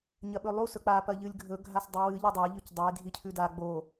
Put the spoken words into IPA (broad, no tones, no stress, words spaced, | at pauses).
ɲɐɓɵlˠu sɵk͡pa pɐʎɨlʲɡʱɵ ɡʱasdˤɨwɨ ʎɐdˤa ʎɵcdˤej dʱicʰʉda ɡ͡bo